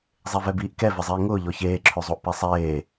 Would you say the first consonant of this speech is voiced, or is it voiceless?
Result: voiced